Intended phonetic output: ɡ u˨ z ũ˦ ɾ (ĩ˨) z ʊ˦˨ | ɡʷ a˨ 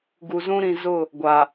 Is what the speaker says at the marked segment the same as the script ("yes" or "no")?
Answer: yes